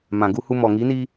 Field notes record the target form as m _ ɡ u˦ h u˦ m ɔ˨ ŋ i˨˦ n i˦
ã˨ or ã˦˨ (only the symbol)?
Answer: ã˨